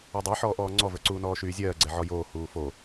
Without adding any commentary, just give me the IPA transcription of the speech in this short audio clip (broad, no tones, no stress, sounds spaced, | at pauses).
o dˤ a ħ ɔː ʔ ɔː ŋ͡ǀ ɔ v ə˞ ǀ uː n ɔː ʃ yː zʲ ɜː ɡ͡ǀ ɛ ʕ ɔ j oː h uː f o